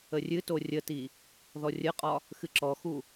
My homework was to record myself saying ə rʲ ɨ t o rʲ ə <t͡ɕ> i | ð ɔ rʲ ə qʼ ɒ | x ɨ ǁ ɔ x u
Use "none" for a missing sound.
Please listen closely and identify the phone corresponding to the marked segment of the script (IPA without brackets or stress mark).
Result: t